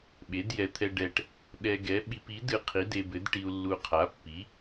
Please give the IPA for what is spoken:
ɓ e˨˥ d j ɛ˧ t̪ʰ ɛ˧ ɖ ɛ˧ ʈ | ɗ ɛ˧ ɡ ɛ˨˥ ɓ i˧ p i˨˥ d ɨ˧ qʰ i˨˥ d e˧ b ɘ˨˥ d ʈ i˧ u̯ lː u˧ qʰ a˨˥ pː i˨˥

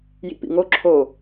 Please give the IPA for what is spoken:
j ḭ p ḭ ŋ o ǁʰ o

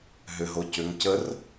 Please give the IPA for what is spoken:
ɦ ʏ ɦ o c ʏ ŋ c ə r

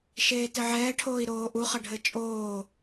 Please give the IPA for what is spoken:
ʃ eː t ɘ ʕ ɛː ʈʰ oː i̯ ɾ oː ʔ u χ ʌ ɖʱ ɘ t͡ʃʼ oː

